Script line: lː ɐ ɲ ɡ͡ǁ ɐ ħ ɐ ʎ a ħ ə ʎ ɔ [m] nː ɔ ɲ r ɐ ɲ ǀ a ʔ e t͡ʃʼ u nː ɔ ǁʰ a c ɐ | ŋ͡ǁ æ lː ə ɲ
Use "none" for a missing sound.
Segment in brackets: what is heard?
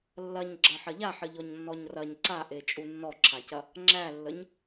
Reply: ɲ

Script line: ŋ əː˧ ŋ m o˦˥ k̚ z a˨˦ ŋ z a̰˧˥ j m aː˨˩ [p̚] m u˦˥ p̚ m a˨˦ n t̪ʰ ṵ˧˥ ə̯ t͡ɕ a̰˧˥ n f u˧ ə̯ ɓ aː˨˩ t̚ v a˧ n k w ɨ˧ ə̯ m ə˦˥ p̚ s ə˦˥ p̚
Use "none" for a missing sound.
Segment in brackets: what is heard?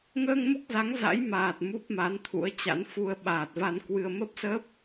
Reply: t̚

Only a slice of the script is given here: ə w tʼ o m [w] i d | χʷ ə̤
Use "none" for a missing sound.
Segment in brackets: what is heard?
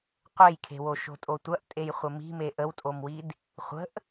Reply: w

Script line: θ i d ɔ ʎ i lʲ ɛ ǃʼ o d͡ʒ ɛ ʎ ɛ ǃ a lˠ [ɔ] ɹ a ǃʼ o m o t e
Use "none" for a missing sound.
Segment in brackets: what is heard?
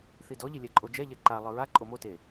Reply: ɤ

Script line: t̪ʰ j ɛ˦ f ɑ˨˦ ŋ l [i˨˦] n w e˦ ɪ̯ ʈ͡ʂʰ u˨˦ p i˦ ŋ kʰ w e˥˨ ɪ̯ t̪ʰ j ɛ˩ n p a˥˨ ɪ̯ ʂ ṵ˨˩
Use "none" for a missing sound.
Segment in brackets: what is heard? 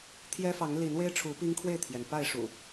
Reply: i˨˦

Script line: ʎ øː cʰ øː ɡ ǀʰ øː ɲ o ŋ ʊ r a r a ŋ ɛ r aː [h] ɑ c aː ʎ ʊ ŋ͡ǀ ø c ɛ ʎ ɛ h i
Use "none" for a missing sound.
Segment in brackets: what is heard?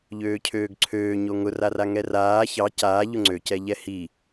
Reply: ç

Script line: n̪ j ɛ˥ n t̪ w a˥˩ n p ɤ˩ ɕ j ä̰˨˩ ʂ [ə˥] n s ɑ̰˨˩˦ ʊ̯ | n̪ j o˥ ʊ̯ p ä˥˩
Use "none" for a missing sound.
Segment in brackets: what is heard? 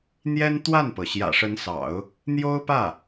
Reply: ə˧˥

